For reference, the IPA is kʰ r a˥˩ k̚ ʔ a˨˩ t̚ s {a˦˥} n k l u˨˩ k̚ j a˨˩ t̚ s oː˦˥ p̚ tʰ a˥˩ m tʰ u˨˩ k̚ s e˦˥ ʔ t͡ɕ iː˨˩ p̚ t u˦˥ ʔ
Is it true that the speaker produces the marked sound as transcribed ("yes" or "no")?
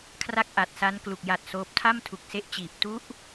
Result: yes